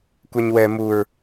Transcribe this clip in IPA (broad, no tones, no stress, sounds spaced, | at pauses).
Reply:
kʷ ɛ ɲ w ɛ m u ɹ